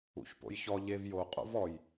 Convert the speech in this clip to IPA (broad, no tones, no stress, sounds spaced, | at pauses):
ṵ ç p o̰ j ç ɔ ʎ e v j o qʼ o̰ v ɔ j